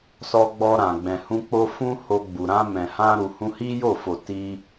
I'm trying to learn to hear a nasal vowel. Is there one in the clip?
yes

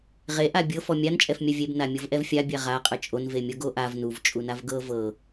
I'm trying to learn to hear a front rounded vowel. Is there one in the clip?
no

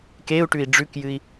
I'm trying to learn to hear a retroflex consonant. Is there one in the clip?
yes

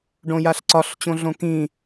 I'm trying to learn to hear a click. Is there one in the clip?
yes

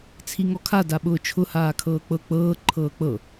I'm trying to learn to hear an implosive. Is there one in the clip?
yes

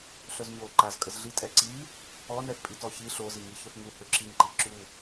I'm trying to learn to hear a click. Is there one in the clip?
yes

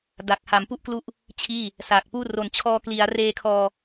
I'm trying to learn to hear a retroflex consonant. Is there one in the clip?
no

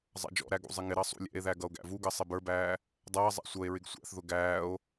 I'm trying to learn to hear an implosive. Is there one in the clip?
no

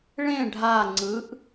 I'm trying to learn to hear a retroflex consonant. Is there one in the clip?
yes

